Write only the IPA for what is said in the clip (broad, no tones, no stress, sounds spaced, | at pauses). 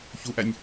ç u ʔ æ nʲ